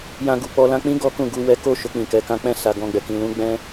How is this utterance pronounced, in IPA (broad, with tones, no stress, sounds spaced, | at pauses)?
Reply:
j ã˧ ɡ u˨ k͡p ɔ˧ l ã˧ k͡p ĩ˦ ɡ ɔ˦ k ũ˦˨ ɡ u˧ w ɛ˦ k o˦˨ ʃ o˧ k͡p ĩ˨ k ɛ˨˦ k ã˧ k͡p ɛ̃˧ s a˨ ɡ ɔ̃˧ ɡ͡b ɛ˨ k ĩ˧ l ũ˦ ɡ͡b ɛ̃˦